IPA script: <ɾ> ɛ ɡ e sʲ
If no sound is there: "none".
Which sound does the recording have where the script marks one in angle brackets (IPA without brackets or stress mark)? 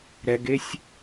ɾ